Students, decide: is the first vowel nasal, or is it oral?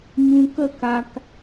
nasal